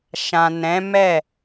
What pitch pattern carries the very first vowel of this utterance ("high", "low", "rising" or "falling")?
low